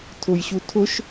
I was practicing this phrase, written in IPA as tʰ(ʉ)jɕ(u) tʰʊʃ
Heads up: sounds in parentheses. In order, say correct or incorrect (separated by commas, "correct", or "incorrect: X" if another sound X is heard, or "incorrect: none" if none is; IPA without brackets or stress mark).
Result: incorrect: ʊ, correct